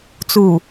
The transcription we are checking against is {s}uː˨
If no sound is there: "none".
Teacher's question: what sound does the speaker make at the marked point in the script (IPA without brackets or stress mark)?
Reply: t͡s